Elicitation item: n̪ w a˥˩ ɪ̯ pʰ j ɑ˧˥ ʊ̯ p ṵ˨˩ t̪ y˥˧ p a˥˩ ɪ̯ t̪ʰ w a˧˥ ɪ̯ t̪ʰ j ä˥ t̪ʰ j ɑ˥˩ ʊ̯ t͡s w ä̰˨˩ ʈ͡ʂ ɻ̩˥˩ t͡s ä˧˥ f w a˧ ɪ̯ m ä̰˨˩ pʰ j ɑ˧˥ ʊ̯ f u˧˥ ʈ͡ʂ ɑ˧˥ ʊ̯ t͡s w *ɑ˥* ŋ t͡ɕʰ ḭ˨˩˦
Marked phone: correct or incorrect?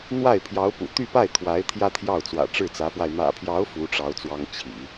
correct